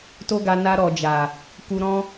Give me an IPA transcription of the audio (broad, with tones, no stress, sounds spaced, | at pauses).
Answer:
t o˦ ɡ a˧ n a˧ ɾ ɔ˨ d͡ʒ a˨ | k u˧ ɾ ɔ̃˦